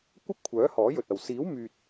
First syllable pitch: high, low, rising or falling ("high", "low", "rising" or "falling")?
high